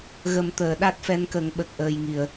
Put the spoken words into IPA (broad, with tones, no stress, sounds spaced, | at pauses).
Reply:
ɣ ə˨˩˦ m t̪ əː˨˩˨ ɗ a˦˥ t̚ f ɛ˧˥ n k ə˨˩˦ ŋ ɓ ə˨˩ k̚ ʔ əː˨˩ j ŋ i˨˩˨ ə̯